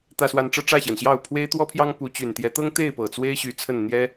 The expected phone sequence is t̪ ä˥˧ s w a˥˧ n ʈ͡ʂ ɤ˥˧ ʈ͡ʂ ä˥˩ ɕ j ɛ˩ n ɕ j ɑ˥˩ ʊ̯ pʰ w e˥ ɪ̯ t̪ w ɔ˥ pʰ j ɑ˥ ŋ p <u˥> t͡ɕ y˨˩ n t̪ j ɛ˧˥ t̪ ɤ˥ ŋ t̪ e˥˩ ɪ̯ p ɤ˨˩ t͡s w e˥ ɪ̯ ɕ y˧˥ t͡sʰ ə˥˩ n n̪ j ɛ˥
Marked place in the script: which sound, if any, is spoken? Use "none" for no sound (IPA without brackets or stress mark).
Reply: u˧˥